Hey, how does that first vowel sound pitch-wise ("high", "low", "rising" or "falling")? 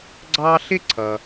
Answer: high